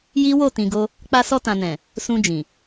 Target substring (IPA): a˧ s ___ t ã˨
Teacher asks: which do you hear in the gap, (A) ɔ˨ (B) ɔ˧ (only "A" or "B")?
B